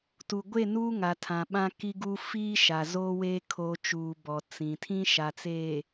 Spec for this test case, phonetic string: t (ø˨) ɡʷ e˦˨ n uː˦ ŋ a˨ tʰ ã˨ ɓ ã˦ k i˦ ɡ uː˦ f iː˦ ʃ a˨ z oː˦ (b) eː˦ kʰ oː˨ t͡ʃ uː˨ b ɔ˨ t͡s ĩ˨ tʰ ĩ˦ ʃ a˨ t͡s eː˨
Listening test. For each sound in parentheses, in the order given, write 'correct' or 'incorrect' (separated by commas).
incorrect, incorrect